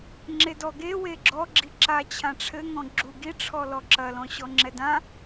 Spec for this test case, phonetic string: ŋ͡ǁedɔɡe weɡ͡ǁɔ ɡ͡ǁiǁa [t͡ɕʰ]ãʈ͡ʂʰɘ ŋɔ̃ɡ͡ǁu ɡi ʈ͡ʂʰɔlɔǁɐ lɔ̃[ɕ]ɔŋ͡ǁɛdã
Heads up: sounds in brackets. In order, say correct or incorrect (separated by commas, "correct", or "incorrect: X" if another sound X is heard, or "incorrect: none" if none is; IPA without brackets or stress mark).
correct, correct